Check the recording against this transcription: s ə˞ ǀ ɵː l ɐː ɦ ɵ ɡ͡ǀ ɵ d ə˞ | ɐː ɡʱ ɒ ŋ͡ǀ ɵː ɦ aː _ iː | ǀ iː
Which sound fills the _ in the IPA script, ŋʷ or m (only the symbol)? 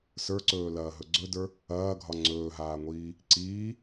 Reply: ŋʷ